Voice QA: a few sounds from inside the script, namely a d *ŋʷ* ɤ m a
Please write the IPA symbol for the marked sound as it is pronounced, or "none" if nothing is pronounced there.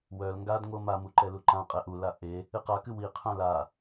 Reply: ŋʷ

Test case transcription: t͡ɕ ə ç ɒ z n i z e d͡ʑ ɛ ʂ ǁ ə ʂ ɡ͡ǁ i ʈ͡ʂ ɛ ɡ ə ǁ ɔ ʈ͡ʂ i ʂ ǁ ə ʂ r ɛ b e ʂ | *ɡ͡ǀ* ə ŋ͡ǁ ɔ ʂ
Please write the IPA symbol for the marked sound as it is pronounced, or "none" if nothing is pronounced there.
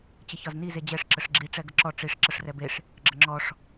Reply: ɡ͡ǁ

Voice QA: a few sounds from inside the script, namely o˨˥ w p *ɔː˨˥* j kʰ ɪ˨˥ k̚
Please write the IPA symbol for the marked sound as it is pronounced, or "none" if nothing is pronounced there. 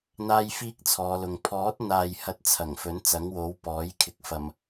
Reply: ɔː˨˥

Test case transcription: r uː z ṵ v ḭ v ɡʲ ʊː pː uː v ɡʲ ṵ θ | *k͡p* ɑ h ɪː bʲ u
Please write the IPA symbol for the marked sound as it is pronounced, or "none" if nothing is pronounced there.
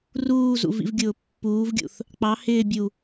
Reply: k͡p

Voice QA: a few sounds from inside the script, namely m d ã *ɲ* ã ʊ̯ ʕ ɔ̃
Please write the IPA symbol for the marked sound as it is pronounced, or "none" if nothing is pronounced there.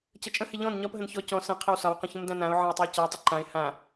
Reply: n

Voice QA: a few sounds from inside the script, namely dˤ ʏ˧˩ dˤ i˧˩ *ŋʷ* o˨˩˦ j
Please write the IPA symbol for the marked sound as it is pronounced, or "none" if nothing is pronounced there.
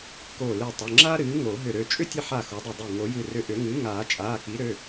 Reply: ŋ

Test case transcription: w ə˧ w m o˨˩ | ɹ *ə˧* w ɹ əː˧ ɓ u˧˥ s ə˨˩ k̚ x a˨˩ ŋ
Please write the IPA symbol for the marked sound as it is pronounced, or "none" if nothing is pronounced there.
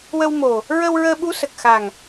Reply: ə˧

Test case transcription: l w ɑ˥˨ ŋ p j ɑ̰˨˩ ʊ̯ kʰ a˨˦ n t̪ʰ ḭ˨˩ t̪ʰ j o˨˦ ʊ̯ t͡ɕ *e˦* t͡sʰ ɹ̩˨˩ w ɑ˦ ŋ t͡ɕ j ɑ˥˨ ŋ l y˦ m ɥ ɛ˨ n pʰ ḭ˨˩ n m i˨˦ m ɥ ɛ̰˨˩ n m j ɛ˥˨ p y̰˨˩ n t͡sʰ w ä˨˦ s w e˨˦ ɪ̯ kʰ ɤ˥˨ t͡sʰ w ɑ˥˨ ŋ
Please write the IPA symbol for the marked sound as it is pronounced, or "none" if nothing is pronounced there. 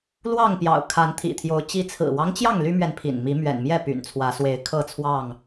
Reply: i˦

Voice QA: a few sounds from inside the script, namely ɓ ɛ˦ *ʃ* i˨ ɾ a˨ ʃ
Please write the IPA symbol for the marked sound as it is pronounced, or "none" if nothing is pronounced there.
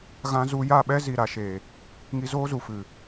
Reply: z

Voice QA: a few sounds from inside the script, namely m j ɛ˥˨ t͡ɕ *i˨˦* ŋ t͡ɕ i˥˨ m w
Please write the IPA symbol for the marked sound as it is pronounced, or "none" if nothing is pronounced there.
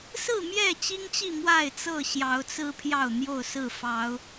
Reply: i˦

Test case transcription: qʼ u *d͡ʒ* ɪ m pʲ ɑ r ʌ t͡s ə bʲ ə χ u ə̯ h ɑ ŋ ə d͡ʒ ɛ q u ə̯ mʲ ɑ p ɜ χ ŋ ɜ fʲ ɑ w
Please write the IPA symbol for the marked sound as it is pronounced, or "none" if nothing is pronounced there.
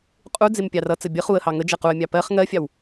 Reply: d͡z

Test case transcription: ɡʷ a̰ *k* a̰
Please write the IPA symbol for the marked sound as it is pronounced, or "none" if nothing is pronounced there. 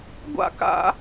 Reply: k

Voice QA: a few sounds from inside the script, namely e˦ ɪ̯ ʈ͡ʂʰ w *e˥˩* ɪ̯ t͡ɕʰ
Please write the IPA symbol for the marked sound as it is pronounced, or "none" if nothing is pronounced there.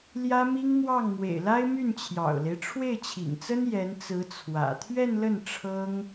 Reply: e˥˩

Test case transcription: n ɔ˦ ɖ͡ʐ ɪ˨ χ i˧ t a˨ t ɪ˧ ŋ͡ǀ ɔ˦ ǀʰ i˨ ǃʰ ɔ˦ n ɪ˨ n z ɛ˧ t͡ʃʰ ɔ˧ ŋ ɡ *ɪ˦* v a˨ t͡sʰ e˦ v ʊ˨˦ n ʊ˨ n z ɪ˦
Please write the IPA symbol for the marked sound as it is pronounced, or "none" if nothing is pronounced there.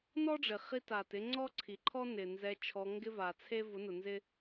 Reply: ɪ˦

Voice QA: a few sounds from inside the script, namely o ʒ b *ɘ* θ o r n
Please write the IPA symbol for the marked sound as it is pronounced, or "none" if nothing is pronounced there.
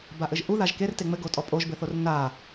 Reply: ɘ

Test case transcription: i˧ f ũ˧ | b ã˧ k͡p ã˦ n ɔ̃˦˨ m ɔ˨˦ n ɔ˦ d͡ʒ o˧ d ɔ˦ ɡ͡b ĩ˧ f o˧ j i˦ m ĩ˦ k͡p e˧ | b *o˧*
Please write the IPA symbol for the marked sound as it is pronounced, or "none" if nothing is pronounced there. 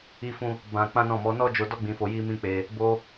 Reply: o˧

